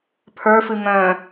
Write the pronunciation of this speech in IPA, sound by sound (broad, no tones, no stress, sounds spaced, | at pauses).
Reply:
pʰ ə˞ f ɨ ŋ œ̃